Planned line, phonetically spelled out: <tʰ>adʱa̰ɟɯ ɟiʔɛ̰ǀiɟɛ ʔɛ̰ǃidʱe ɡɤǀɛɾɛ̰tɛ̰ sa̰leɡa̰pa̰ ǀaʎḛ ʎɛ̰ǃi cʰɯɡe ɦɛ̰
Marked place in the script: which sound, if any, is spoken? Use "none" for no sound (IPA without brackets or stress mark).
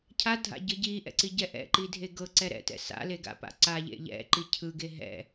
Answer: cʰ